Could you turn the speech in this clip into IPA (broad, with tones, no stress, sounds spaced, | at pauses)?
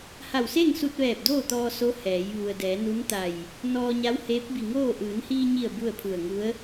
h a˧˩ w s e˥˨ ŋ s u˧ t̚ ʋ ɛː˧˩ p̚ d oː˥˨ t̪ ɔː˧ s o˧˥ h ɛː˩˧ j ʋ u˩ ə̯ d ɛː˩˧ n u˧˥ n t̪ a˧˩ j | n ɔː˧ ɲ a˧˥ w h eː˧˥ p̚ b i˧˩ ŋ oː˥˨ ʔ ɯː˩˧ n h iː˧ ɲ i˧˩ ə̯ b u˥˨ ə̯ pʰ u˧˩ ə̯ ŋ u˧˥ ə̯